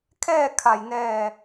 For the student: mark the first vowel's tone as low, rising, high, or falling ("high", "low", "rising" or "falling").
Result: falling